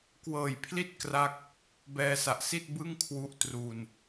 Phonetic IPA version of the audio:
kwɤː˨˩jpʰli˥˩t̚ kra˥˩k̚ | bɛː˧sa˨˩ʔsi˥˩t̚ bɯ˥˩ŋ kʰwu˦˥ʔ tru˧n

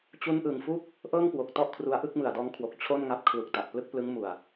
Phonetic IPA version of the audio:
t͡ɕu˧nʔɯ˨˩ŋfu˥˩k̚ | ʔɤː˥˩ŋkwo˨˩k̚tɔ˥˩ʔ kʰru˧a̯ ʔɯ˥˩k̚mɯ˨˩a̯dɔː˦˥ŋkʰwo˨˩k̚ t͡ɕʰo˥˩nŋa˦˥p̚ kʰlu˨˩k̚ta˨˩ʔplɯ˥˩k̚plɯ˦˥ŋ mu˨˩a̯

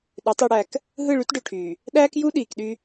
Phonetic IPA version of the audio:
ɗø˨˦tˤ i˨ɽæ˨k | ɦɯ˦˨ɭy˦tɖø˨ʈʰyː˨ | ɗæː˦kju˦ɗiː˨kɗy˦

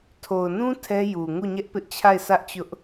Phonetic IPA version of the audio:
tʰo˨ʊ̯nũ˦ tʰɛ˦ju˨ ŋu˦˨ɲɛ˦ʔpɪ˦ʔ t͡ɕʰa˦˨ɪ̯ sʰä˦ʔt͡ɕʊ˦ʔ

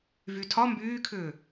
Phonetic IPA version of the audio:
vytʰɒ mbyːkʰʏː

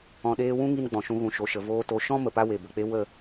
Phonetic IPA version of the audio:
ɔ̃˧ɗeː˦ wũ˦ŋi˧n ɡ͡bɔ̃˨ʃũ˧ ɣũ˨ʃo˨ʃə˨ voː˧to˨˦ ʃɔ̃˦ mə˨pa˦ we˨bə˨k͡pe˦ wə˦˨

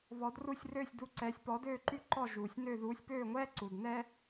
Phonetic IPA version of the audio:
βɔ˩˥dru˥˩sʲrøː˥˩sʲdu˧ ǀɛː˩˥sʲpɔ˩˥døː˥˩ǃy˥˩ ǃɔ˥˩ ʒuː˩sʲ nø˥˩ ðuː˩˥sʲpøː˥˩ŋʷɛː˥ ǀu˩dnɛ˥

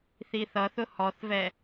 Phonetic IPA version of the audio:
θiθʌθʊ hɔθvɛ

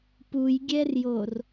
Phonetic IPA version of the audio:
pujɡʲɛrjor

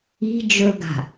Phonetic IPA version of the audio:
i̤ d͡ʒɵɡa̤

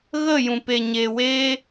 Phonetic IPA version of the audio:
ɣə˦˨jũ˨pe˨ ɲe˨weː˦

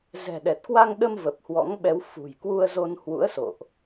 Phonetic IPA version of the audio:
zɛ̤˨˩ɗɛ˨˩t̚ kwa˧ŋɗə˧m və˨˩p̚hwɔ̰˧˥ŋɓɛ˨˦wfṳ˨˩j kwu˧ə̯zo˧nhwṵ˧˥ə̯so̰˧˨ʔ

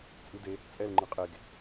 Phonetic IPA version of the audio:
t͡sʼʉde | t͡sʼɛl ŋ͡ǃɯqʼeɡ

